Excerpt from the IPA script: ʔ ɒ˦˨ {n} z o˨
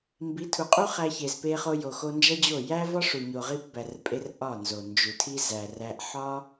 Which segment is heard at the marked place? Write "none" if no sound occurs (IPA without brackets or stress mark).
n